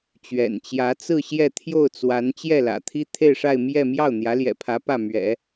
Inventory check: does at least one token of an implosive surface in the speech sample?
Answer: no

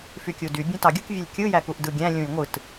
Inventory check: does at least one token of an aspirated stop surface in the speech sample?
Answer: no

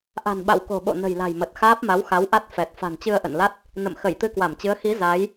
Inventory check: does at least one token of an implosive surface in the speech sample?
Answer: yes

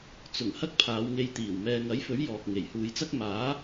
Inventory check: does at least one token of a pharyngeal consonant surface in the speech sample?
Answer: no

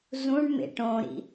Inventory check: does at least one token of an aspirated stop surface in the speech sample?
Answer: no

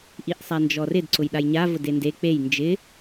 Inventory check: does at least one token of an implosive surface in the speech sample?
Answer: yes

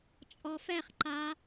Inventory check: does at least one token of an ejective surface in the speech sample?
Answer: yes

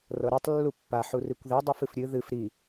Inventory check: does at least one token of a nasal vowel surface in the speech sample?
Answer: no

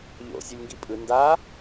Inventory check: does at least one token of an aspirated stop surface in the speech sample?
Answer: no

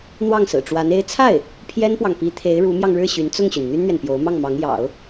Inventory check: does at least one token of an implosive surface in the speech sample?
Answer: no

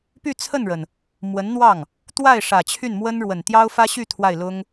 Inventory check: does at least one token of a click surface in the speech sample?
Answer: no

